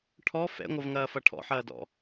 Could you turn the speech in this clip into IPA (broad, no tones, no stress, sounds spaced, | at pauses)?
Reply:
ʈʰ ɔ f ɛ̰ ŋʷ ʌ v ŋ ɐː f ʌ ʈʰ ɔ̰ ħ ɐː d ɔ̰